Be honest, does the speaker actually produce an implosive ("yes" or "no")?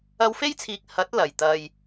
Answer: no